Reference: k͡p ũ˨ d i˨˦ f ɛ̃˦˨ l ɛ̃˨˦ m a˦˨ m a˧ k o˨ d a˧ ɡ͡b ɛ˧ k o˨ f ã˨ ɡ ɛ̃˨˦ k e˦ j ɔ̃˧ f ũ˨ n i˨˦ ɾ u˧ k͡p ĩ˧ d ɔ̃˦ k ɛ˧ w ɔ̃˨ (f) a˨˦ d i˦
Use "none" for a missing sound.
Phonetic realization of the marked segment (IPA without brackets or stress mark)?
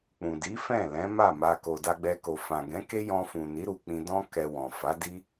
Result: f